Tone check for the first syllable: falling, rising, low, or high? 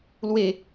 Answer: falling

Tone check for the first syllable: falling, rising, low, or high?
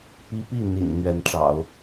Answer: high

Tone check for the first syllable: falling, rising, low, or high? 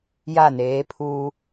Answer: falling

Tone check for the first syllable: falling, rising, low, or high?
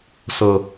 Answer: low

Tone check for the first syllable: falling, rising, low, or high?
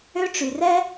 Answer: high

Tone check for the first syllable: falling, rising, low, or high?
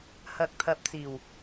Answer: low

